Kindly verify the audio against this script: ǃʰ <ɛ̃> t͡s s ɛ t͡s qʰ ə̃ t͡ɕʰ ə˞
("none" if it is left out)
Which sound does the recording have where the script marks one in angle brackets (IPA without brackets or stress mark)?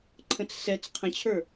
ə̃